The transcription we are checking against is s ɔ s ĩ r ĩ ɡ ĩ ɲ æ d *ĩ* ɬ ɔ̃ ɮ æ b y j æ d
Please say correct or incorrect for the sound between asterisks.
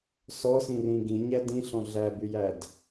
correct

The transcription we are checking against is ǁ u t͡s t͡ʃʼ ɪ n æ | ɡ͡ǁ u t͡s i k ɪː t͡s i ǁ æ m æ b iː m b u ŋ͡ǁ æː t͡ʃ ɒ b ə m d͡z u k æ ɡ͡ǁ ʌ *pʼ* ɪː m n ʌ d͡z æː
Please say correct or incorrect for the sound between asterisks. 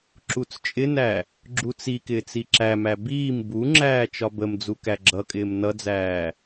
incorrect: kʼ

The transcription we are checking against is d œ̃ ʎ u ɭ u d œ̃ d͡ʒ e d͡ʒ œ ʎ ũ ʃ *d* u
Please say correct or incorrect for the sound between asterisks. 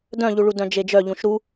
incorrect: ɾ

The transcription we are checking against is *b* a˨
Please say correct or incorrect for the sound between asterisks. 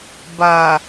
correct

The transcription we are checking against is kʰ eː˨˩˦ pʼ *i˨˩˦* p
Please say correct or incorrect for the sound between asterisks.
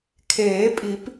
correct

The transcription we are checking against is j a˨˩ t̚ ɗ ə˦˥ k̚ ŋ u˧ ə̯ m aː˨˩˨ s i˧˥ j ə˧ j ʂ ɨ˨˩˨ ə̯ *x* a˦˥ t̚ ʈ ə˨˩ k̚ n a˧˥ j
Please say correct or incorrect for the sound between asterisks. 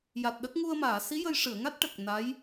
incorrect: ŋ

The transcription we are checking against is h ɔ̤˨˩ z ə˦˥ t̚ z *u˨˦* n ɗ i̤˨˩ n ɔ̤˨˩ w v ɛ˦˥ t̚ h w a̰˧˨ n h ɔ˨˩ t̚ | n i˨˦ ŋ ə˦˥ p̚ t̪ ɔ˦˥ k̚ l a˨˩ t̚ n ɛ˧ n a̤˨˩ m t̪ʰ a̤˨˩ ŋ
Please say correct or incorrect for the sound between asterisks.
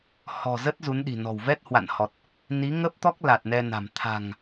correct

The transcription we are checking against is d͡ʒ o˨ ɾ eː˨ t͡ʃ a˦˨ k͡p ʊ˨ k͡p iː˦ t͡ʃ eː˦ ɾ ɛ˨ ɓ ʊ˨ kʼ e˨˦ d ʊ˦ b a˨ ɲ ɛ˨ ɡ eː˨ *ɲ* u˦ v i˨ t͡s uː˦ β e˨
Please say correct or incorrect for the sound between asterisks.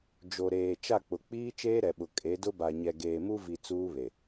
incorrect: m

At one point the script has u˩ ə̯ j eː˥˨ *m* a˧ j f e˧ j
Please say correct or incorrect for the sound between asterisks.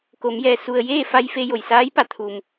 incorrect: f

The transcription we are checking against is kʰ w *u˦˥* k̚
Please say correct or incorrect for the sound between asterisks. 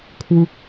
correct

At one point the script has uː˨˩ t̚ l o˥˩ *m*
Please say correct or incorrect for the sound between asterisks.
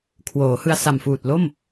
correct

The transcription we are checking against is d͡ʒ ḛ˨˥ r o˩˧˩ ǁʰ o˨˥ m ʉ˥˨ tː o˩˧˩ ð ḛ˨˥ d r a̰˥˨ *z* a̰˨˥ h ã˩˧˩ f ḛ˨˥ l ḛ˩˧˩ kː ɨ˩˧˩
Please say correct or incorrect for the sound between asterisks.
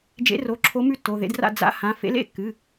incorrect: d͡z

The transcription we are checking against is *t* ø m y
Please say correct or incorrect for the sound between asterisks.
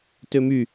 correct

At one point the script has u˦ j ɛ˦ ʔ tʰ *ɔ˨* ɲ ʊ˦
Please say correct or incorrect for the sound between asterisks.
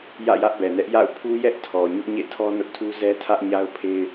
correct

